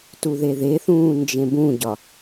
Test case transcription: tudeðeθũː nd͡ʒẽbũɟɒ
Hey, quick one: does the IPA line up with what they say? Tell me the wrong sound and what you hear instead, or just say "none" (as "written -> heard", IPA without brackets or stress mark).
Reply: d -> ð